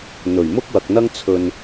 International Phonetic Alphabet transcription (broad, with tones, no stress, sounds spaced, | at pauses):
n̪ ɵ˨˩ ɥ m ʊ˥ k̚ w ɐ˨ k̚ n̪ ɐ˥ ŋ t͡sʰ ɵ˧ n